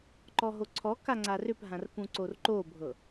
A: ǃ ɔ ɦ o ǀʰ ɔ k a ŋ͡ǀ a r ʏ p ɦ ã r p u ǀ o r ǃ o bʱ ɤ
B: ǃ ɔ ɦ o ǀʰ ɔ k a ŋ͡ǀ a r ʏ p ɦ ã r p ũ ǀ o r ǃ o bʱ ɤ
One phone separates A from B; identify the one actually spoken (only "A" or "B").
B